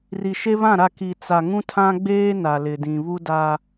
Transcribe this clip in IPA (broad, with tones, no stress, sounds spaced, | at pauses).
r i˨ ʃ e˦ β ã˦˨ ɾ a˦˨ k i˨ t͡s a˨ ŋ ũ˦ tʰ ã˦ ɡ͡b eː˦ n a˨ l ɪ˨ d ĩ˨ β u˦ d a˦